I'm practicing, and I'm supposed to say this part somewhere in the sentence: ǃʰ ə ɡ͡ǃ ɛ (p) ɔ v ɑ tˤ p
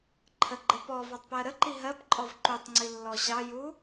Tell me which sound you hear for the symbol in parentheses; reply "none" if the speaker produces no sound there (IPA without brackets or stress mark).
p